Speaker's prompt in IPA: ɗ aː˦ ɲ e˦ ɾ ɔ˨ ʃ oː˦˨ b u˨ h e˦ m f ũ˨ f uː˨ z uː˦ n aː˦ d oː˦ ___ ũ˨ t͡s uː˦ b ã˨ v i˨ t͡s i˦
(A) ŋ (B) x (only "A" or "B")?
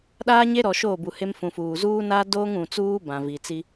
A